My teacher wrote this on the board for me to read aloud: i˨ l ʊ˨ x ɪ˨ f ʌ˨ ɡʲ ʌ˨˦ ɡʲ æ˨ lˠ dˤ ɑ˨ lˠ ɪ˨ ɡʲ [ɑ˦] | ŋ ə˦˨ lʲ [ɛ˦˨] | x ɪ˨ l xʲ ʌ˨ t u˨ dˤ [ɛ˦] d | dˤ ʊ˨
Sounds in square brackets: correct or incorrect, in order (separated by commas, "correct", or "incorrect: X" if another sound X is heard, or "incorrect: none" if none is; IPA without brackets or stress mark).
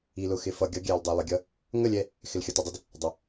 incorrect: ʌ˦, correct, correct